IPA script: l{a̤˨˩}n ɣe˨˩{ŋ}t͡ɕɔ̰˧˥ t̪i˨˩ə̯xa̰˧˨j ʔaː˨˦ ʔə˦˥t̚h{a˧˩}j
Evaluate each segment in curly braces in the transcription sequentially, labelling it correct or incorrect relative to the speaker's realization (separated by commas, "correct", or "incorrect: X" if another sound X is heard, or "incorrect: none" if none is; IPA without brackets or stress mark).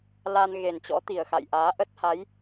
incorrect: a˧, incorrect: n, incorrect: a˨˦